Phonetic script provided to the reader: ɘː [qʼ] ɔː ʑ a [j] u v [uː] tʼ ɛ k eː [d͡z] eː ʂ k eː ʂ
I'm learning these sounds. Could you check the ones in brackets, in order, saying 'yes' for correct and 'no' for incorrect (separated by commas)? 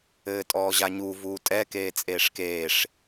no, no, yes, no